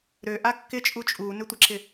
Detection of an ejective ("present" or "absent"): present